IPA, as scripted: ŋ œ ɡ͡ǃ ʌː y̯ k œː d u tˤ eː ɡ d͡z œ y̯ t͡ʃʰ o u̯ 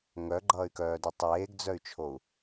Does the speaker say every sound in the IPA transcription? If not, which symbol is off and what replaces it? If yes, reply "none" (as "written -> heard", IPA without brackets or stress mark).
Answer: none